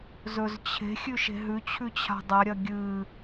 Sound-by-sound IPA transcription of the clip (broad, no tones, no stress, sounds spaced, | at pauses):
z ɵ z t͡ɕʰ e̤ xʲ ʉ ʃ e̤ ɦ ʉ t͡ɕʰ ʉ t͡ɕʰ a̤ dˤ a ɾʲ ɐ ɡʲ ɨ